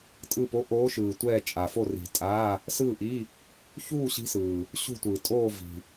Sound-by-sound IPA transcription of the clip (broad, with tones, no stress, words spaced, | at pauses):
tʼɯ˥˨po˧˥˧ ʔoː˧˥ʃɯː˨ tʷɛː˥˨t͡ʃʼa˨fo˥˨ ri̤˨tʼaː˧˥˧ | sɯː˥˨ʔi˧˥˧ | çuː˥˨ ɕi̤˧˥sɯː˨ | ɕṳ˥˨tʷɯː˨ tʼoː˥˨ vi̤˨